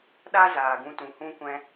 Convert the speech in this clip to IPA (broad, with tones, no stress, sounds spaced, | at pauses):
ɗ a˦ z aː˧ ɡ ũ˦ t ũ˧ h ũ˦ kʷ ɛ̃˦